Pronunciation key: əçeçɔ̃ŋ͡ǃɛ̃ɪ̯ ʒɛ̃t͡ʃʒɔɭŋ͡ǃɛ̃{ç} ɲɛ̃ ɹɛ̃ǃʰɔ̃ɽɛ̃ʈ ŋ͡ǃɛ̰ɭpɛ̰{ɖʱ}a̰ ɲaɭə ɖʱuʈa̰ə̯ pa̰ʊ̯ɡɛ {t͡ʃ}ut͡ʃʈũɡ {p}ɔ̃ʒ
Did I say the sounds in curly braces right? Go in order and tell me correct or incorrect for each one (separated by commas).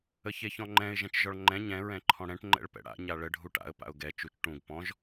incorrect, incorrect, correct, correct